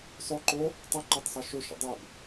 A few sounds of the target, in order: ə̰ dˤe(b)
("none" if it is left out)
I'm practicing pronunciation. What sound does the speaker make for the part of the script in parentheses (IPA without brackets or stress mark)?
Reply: b